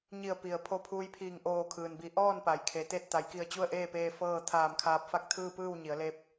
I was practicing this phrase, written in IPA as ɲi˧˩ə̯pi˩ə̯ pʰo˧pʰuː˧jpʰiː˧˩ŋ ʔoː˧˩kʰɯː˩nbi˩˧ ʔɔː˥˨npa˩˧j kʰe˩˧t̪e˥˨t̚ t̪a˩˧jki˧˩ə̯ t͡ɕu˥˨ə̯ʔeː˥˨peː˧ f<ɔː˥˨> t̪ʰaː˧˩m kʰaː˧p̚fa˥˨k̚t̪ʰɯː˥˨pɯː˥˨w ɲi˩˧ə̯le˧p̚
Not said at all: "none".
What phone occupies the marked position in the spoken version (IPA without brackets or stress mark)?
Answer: ɤː˥˨